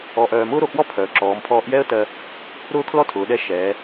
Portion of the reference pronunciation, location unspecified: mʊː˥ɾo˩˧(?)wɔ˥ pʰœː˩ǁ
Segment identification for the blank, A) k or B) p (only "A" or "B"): A